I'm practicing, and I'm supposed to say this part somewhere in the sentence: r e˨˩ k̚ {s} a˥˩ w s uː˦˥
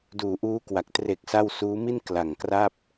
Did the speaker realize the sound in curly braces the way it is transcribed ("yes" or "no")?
yes